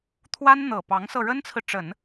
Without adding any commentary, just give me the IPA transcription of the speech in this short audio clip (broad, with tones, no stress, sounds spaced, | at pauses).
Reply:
t̪ʰ w a˥ n n̪ ɤ˨˩ p ɑ˧˥ ŋ s ɤ˧ ɻ ə˥ n t͡sʰ ɹ̩˨ ʈ͡ʂ ə˨˩˦ n